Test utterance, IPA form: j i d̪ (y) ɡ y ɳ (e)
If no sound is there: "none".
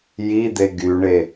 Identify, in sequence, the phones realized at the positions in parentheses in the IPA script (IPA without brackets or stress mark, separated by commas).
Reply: e, e